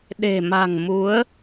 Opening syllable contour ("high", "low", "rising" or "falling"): low